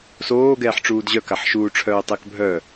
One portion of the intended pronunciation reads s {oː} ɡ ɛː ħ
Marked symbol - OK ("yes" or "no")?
yes